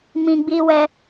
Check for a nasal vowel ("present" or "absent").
present